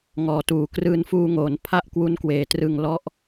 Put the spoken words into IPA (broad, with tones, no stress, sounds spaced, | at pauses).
ŋ ɔː˨˩ t uː˨˩ k r ɯː˧ n f uː˧ ŋ oː˩˦ n pʰ a˥˩ ʔ k w u˦˥ n k w eː˩˦ t r ɯ˨˩ ŋ l ɔ˦˥ ʔ